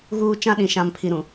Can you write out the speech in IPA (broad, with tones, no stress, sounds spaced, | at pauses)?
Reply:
ɣ uː˦ t͡ʃ ã˦ ɗ ĩ˨ ʃ ã˨ m pʰ i˨ ɾ ũ˨